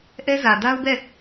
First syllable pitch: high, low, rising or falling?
high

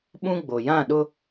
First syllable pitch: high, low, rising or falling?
high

